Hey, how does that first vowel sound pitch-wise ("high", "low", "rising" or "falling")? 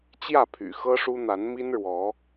falling